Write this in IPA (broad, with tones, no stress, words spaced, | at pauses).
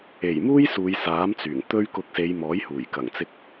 e˨˩jmuː˥j suː˨˧j saː˨˥mt͡syː˨˩ŋ t̪ɵ˥ɥ kʊ˧k̚se˨˧jmɔː˨˥jhuː˨˩j kɐ˨˩ŋt͡sɪ˧k̚